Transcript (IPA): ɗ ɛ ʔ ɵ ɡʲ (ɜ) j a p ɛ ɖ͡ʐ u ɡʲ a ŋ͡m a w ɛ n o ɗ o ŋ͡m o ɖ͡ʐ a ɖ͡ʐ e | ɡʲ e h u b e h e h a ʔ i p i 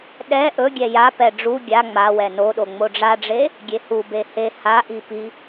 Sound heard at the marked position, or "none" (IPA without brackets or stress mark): ɛ